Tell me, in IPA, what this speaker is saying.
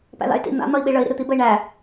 p æ̰ ð a̰ y̯ t ḭ n̪ a̰ n̪ ʌ i̯ ɓ i ɭ ə i̯ ɾ ḭ ɾ ɨ t̪ i b ə i̯ ɳ æ

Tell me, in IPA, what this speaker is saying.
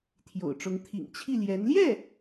t̪ʰ j o̰˨˩ ʊ̯ ʈ͡ʂ ʊ˧˥ ŋ t̪ʰ ḭ˨˩ ŋ t͡ɕʰ i˥˩ l j ɛ˧˥ n l j ɛ˥˩

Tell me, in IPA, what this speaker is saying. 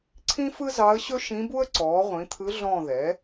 ǀʰ ĩ˥ f ɯ˥ z ɑ˧˥ ə̯ ɕ ɵ˥ ʃ ĩ˧˥ b u˥ ə̯ ǀ ɔː˩˥ ʁʷ ĩ˩˥ t̪ʰ ɯ˧˥ ɮ ɔ̃˦˨ ð ɛ˩˥

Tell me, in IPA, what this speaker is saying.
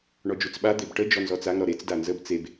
ɳ ɔ d͡ʒ u t͡s ɓ a d̪ e b ʈ ə d͡ʒ ɔ n z ɔ t͡s a ŋ ɾ ɔ ɾ e t͡s d a n z ə b t͡s e b

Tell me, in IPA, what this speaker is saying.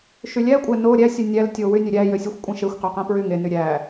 ʃ y lʲ æ kʷʼ æ n o ɾʲ æ sʲ ɯ nʲ æ l tʲ o w y nʲ ø ɾʲ æ j ø sʲ e xʷ kʷʼ ẽ ʃ e xʷ q ø q æ̃ p ɹ y ŋ e n y ɾʲ æ

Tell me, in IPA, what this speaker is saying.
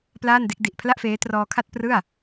p l aː˥˩ n d e˦˥ k̚ d i˨˩ ʔ pʰ l a˥˩ ʔ f eː˦˥ t r ɔː˧ kʰ a˥˩ t̚ p r ɯ˥˩ a̯

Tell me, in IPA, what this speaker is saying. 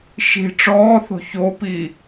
ʃ i̤ ʈ͡ʂ ɔː θ o̤ ç o p i

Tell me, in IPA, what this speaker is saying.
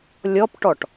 lʲ ɔ p ʈ ɔ ʈ

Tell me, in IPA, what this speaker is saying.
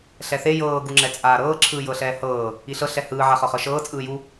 ɬ ɛ θ e j ɤː ɡ u ŋ͡ǁ ɛ t͡sʼ aː ɾ ɤː ǁʰ ɯː j ɤ ɬ ɛː h ɤː | i ɬ ɤ ɬ ɛ h ɯː ʕ a χ ɤ χ ɤ ʃ ɤː t͡sʼ ɯː j u

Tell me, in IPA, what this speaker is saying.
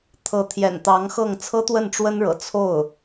t̪ʰ ɤ˧˥ t̪ʰ j ɛ̰˨˩ n t̪ ɑ˧˥ ŋ x ɤ˥˩ ŋ t͡sʰ ɤ˥ t̪ w ə˥˩ n ʈ͡ʂ w ə˥ n ɻ ɤ̰˨˩ t͡sʰ o˥˩ ʊ̯

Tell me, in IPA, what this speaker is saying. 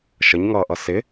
ʃ ə ɲ ŋ ʌː ʔ ʌ s ɪ

